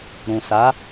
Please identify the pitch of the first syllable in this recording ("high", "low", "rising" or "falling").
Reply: low